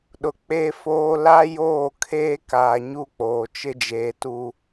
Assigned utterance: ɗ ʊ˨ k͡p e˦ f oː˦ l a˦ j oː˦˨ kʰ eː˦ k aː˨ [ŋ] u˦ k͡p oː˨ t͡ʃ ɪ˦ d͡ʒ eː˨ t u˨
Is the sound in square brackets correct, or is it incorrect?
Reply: incorrect